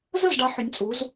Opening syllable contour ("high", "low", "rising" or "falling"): falling